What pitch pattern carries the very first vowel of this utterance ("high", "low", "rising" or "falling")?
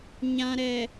low